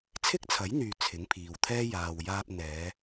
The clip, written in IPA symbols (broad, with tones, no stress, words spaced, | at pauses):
t͡sʰɪ˥k̚t͡sʰɐ˨˥jn̪yː˨ t͡sʰɪ˨˥ŋpʰiː˨wt̪ʰɛː˥ jaː˨wjaː˧p̚ n̪ɛː˨˧